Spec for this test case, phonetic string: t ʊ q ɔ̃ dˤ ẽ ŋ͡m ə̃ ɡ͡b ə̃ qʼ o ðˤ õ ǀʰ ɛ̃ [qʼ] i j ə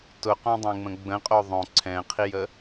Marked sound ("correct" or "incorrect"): incorrect